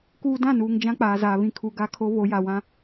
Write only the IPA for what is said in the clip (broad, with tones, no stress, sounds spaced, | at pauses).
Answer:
k uː˦ d ã˦˨ n uː˨ ŋ d͡ʒ ã˦ k͡p aː˨ z aː˨ β ĩ˨ kʰ u˨ ɡ a˦ kʰ o˦ β o˨˦ j a˨ w ã˦